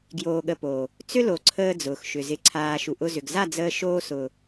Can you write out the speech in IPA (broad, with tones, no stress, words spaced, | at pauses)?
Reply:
ɡjoː˧ɠə˧poː˨ | t͡sʏ˦lo˨ ǀʰəː˦d͡zʊː˨xʃʏ˨ zɪ˨ǀʰaː˨ ʃu˨ʔʊ˧zʏ˨ɡ za˦˨d͡zəː˧ʃoː˧ sʊ˨